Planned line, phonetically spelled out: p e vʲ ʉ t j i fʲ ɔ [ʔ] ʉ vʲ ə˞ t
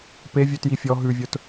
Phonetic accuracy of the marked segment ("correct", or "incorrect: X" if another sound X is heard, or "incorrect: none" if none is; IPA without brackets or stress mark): incorrect: ɦ